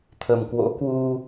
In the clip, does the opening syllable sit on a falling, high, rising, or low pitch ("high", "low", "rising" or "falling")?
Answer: low